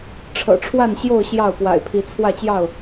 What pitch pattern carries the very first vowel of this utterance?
low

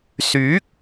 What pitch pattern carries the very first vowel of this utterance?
rising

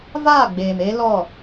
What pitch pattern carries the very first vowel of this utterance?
falling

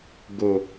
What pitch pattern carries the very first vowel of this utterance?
low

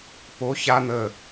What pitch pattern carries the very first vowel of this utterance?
rising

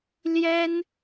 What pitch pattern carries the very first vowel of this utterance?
high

